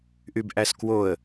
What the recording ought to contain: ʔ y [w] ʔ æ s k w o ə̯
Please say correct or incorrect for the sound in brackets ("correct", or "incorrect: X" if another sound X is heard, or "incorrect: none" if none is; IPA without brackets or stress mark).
incorrect: b